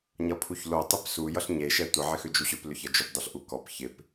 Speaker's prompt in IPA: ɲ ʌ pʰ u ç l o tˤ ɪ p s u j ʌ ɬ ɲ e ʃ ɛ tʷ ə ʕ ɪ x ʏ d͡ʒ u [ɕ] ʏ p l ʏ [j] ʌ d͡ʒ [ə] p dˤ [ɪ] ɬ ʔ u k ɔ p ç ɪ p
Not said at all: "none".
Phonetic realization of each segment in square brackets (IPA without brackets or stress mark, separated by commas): ɕ, ç, ʏ, ʏ